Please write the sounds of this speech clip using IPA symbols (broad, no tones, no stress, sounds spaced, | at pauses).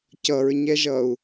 c ʌ ɹ ɲ ɛ ʒ ʌ u̯